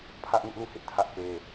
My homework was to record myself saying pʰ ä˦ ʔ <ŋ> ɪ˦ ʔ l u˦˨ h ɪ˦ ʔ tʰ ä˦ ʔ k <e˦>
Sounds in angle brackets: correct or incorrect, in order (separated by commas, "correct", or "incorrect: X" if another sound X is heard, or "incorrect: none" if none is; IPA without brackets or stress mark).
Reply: correct, correct